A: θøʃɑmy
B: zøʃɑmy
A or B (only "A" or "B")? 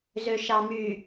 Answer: B